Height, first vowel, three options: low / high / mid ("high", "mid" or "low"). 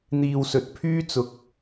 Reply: high